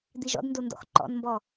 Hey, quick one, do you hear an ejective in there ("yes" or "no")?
no